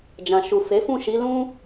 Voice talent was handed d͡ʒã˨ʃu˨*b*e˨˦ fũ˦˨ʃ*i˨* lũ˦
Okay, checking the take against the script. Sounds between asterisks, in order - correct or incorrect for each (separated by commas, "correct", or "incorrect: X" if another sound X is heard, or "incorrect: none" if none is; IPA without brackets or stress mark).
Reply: incorrect: f, incorrect: i˨˦